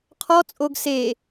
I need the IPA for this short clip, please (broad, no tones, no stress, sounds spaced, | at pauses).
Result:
qʰ ɔ t͡sʼ o ɡ s e